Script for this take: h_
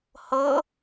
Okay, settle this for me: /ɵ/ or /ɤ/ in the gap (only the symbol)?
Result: ɤ